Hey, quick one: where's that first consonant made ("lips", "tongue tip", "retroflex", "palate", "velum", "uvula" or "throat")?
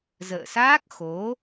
tongue tip